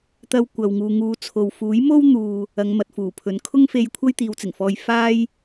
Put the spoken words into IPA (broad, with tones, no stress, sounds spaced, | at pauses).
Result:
t̪ ɐ˧ w kʷ ɐ˨ w ŋ uː˨ ŋ uː˨˧ t͡sʰ o˨ w f uː˨˥ j m o˥ w n̪ uː˧ | ɐ˨˧ ŋ m ɐ˨ t̚ f uː˨˩ pʰ ɵ˨˥ n kʰ ʊ˥ ŋ f e˧ j kʷʰ ɐ˥ j t̪ iː˨˧ w t͡s ɪ˨˩ ŋ f ɔː˧ j f aː˥ j